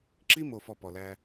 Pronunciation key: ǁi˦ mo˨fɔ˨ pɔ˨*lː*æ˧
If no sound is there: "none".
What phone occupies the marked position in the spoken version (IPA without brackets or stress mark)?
l